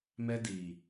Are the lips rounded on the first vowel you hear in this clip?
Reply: no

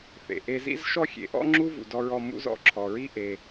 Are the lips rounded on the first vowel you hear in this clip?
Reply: no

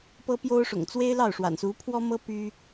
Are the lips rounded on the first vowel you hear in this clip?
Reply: no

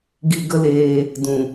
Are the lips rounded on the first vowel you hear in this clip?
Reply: no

